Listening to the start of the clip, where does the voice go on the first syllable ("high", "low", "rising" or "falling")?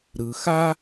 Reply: low